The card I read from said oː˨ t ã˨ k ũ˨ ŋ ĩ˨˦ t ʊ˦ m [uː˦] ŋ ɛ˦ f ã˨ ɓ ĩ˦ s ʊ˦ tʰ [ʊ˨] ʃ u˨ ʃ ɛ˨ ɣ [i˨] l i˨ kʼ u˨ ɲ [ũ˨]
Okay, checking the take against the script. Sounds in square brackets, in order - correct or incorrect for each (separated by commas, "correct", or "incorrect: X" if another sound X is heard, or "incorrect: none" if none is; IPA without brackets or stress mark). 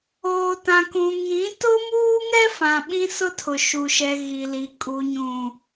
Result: correct, correct, correct, correct